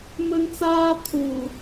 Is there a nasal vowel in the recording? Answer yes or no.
no